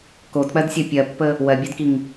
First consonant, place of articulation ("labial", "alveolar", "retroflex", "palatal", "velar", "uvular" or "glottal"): velar